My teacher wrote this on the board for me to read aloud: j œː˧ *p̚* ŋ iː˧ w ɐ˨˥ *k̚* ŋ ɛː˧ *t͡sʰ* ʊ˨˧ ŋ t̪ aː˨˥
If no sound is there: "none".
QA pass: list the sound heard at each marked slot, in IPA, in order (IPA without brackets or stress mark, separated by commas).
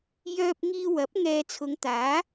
p̚, p̚, t͡sʰ